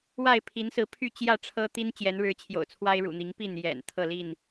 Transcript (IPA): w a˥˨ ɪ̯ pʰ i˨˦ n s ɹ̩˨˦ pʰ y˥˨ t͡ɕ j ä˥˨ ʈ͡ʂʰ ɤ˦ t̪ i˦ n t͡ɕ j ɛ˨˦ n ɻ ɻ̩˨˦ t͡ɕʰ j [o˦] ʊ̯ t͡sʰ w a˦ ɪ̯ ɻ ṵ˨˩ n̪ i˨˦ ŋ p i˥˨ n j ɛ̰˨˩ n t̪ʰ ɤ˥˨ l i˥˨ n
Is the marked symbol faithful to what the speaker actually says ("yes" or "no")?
no